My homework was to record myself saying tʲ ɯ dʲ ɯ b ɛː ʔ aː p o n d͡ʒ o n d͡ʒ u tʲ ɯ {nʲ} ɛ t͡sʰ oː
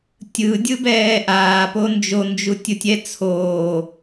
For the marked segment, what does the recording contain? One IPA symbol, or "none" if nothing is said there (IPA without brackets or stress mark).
tʲ